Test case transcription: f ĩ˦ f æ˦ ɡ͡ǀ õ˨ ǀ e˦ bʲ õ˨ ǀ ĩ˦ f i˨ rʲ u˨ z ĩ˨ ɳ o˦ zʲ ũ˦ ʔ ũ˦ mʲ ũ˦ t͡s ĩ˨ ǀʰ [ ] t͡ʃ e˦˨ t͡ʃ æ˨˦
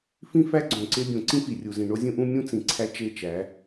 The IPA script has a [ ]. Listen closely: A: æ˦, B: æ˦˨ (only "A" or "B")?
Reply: A